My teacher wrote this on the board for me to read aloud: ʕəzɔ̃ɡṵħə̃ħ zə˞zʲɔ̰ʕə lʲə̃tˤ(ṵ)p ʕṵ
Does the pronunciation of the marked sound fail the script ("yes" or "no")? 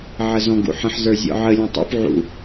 no